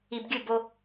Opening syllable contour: low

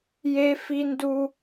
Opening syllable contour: high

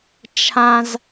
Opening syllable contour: low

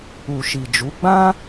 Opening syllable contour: low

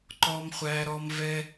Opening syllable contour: high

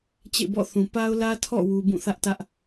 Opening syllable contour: falling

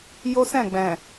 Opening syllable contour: high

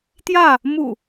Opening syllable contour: falling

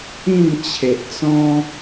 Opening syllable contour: falling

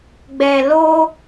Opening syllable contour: low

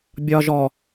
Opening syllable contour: low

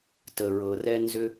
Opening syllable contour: low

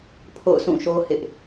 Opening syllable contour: falling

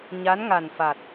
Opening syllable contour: rising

